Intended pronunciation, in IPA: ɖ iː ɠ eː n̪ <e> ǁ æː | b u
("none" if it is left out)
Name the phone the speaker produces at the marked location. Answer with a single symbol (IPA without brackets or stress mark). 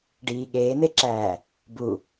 e